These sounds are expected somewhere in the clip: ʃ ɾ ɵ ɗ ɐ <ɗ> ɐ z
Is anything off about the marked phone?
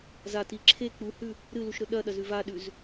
no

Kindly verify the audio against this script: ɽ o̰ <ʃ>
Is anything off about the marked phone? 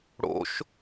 no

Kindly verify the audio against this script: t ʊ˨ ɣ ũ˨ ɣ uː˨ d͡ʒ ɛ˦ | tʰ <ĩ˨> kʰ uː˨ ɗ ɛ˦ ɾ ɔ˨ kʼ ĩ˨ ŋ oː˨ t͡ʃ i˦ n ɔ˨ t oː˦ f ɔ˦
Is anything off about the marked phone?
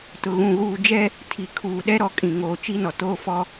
yes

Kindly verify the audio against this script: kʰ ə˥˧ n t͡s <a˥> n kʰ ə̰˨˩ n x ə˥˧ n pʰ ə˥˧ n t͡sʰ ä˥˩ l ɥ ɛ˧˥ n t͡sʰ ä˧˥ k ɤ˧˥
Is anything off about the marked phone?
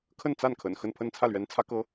yes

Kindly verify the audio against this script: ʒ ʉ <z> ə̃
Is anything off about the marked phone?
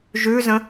no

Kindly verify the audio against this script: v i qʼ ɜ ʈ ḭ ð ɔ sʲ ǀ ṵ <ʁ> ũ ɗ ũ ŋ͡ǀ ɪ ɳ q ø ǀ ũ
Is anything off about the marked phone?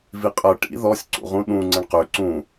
no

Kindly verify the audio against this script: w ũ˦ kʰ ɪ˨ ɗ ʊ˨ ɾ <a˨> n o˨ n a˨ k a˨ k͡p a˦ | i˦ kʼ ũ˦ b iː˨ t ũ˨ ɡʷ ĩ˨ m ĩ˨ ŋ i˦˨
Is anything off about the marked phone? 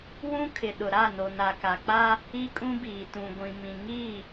yes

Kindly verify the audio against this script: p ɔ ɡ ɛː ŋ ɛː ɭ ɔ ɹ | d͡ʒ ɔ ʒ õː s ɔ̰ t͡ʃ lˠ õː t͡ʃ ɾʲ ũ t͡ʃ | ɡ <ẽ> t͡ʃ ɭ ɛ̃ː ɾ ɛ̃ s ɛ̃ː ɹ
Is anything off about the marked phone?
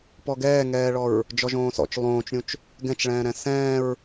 yes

